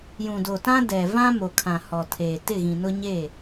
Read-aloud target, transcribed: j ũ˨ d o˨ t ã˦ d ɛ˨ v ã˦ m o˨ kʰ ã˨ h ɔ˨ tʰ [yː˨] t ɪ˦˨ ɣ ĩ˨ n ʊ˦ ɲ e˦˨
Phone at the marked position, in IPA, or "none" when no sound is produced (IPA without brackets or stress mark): eː˨